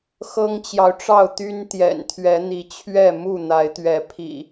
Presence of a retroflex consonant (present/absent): present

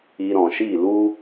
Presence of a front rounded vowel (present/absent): absent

